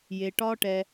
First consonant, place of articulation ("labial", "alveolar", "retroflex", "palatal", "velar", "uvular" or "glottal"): palatal